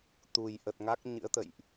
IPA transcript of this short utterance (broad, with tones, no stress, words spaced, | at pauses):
t̪u˨˩jʔə˨˩t̚ŋa˦˥k̚ ɲɨ̰˧˥ə̯t̪ə̰˧˨jʔ